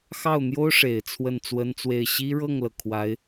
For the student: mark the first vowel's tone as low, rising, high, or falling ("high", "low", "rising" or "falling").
falling